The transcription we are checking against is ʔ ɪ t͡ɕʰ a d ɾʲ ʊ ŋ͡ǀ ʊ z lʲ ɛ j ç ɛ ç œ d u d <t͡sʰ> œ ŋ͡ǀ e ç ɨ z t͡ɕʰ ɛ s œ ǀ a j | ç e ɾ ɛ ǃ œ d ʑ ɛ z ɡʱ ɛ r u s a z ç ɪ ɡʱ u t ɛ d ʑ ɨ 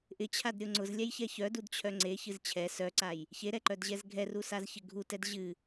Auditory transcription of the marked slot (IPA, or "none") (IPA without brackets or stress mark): t͡ɕʰ